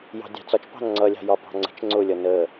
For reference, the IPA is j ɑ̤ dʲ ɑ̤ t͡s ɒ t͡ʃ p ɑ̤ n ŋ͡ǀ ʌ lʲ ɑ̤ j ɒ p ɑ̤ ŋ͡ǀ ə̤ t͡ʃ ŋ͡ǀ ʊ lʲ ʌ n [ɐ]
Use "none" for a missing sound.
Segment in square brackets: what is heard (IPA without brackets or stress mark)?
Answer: ə